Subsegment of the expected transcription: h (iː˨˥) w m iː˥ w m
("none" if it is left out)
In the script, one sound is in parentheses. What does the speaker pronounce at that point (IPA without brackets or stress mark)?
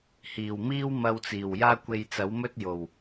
iː˨˩